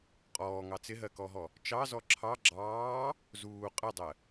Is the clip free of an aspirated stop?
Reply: no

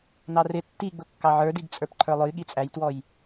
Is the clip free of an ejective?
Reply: no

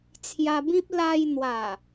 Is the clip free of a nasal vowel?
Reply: no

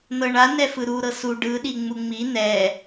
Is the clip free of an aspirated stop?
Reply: yes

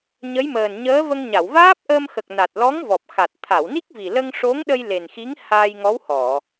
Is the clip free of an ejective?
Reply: yes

